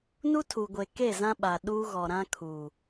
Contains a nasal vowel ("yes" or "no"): yes